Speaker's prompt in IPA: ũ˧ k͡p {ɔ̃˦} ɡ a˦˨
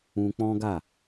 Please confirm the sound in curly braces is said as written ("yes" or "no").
yes